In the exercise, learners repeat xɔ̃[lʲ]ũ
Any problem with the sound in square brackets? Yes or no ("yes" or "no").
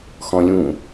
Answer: no